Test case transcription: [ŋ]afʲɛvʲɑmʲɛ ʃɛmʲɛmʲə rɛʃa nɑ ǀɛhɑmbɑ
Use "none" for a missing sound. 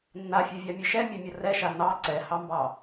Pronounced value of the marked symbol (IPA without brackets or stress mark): nː